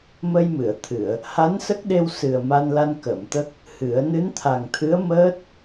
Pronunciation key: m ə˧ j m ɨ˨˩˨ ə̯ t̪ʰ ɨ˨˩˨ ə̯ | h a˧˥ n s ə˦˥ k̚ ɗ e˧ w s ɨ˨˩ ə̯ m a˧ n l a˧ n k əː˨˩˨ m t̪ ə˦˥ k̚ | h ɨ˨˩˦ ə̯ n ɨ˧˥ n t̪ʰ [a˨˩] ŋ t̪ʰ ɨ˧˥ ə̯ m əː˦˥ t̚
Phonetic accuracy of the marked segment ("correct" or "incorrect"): correct